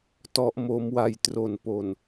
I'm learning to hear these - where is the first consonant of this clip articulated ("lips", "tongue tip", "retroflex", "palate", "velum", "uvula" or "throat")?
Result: tongue tip